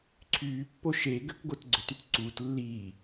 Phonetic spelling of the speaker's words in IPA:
ǀʰ yː pː o ʃ e ɡ ø k ɡ o t ɡ͡ǀ ø t y t ǀ uː t lː iː

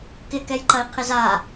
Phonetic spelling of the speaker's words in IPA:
k ɪ k ɛ j ǃ ɐ i̯ qʰ ɪ z a

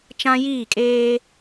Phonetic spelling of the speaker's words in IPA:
t͡ʃ ã˦ j iː˦˨ kʼ eː˦

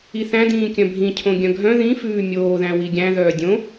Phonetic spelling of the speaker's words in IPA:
i θ æ̃ d ĩː kʲ œ̃ bʱ ĩ cʰ õ ɡʲ œ̃ ɡʱ œ̃ ð ĩ f ʉː mʲ oː ð æ̃ w i ɡʲ æ̃ ð œː dʲ õ

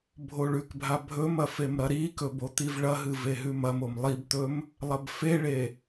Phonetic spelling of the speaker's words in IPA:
bʱ o ɭ ʉ k bʱ a bʱ ɵ m ɐ f e m ɾ ɐ ɾ i k ɵ b o t̪ i v ɭ ɐ ɦ ɨ v e ɦ ʉ m ɐ m o m lˠ i b t̪ ɵ m | lˠ ɐ b f e ɭ e

